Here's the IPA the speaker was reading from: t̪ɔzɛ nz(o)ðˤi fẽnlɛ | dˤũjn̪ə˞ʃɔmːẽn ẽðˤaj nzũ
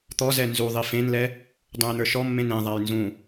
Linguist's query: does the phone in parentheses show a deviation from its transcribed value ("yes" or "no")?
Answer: yes